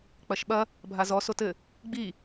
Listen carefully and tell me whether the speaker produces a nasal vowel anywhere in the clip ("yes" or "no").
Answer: no